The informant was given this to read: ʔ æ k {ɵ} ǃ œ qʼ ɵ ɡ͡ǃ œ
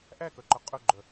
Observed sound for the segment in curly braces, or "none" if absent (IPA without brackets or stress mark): œ